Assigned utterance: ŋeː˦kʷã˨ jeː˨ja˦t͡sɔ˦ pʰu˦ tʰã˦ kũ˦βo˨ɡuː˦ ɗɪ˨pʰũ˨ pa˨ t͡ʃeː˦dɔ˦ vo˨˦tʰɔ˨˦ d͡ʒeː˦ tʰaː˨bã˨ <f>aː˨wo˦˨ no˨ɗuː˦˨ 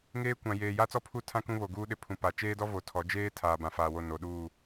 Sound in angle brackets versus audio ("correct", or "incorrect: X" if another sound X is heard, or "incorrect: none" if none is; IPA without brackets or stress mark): correct